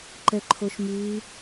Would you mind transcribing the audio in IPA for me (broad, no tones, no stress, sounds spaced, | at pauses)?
ǃ ɛ ǃʰ o ʃ m ʉ